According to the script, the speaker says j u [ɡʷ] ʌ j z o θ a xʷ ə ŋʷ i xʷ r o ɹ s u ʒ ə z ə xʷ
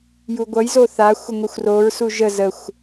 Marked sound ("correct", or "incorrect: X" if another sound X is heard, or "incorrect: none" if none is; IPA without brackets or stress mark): correct